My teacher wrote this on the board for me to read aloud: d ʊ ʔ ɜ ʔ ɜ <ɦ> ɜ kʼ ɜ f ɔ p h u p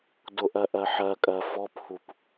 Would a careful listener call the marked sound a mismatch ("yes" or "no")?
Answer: yes